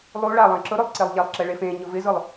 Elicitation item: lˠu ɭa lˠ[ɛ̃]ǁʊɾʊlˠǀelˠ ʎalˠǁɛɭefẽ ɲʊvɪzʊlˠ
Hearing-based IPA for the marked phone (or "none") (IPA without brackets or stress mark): ɛ̃